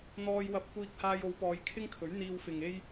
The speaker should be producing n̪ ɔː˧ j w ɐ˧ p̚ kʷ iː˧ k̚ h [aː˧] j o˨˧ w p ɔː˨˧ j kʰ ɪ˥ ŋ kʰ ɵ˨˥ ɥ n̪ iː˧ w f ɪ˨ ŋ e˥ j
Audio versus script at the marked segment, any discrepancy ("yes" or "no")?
no